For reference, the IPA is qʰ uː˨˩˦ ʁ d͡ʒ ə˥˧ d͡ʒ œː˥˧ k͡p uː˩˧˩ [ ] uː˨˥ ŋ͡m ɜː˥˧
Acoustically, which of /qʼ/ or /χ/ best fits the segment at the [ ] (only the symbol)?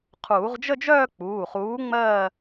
χ